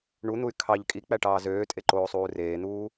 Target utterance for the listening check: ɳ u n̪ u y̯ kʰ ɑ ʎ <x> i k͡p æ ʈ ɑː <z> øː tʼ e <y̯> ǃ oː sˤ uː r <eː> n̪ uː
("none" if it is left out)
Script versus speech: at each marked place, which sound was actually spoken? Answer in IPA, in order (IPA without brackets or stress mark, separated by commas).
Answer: kʼ, z, none, eː